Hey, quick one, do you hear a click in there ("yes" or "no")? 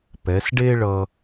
no